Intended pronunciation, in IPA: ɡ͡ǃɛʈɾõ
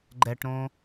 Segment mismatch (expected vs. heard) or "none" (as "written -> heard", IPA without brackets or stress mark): none